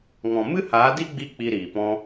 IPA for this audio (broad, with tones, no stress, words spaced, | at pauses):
ŋɔ̃˨mɨ˦haː˨˦di˦ ɡ͡bi˦k͡pi˧ ɾiː˨pɔ̃˧